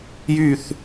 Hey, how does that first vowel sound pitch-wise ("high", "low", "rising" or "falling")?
falling